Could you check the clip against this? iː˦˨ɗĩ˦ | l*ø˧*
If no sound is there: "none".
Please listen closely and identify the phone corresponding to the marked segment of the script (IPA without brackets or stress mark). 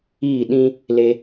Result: e˧